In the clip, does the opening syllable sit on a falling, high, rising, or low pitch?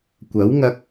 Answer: rising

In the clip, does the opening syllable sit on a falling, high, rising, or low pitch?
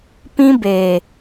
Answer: high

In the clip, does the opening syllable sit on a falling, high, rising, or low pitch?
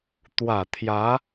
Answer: low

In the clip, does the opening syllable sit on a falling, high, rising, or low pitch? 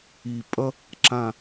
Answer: low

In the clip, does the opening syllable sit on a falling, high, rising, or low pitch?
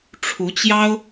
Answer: rising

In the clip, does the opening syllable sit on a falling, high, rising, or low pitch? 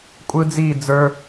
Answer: high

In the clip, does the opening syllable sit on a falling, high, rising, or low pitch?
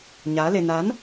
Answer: rising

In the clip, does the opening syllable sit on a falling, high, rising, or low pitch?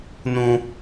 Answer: low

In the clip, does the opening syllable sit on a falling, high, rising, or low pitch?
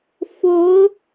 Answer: rising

